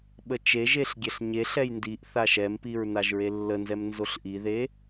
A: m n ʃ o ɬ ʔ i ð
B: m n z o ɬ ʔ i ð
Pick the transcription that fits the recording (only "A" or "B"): B